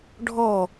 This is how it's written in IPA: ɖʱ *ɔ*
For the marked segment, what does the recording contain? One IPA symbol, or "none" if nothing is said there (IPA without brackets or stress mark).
ɔ